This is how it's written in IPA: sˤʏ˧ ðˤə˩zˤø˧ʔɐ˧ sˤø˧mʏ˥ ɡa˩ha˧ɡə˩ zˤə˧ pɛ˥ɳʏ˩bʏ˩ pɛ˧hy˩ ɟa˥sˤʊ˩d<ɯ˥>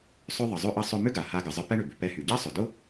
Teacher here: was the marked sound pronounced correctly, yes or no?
no